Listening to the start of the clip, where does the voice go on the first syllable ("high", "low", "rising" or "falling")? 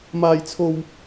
high